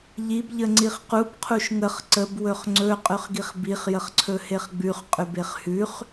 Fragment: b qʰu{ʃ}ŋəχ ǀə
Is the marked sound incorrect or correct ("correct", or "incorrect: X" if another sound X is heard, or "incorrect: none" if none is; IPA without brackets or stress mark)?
correct